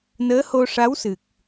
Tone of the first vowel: rising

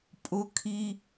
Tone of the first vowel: high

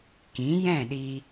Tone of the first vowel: rising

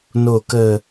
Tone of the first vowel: low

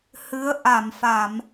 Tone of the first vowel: rising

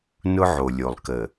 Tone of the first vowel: high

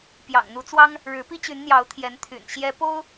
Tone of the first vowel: low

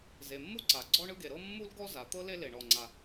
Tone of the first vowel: low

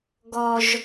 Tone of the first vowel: high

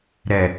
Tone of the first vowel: low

